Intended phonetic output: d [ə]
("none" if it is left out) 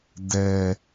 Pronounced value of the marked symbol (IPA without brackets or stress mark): ɛ